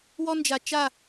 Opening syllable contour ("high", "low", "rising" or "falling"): high